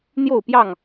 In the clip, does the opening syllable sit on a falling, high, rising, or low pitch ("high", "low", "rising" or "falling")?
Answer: falling